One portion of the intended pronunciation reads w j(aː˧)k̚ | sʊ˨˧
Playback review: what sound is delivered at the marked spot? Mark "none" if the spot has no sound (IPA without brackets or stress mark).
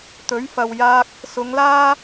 aː˧